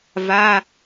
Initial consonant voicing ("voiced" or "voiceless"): voiced